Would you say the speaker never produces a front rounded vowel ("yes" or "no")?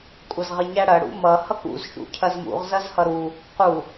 yes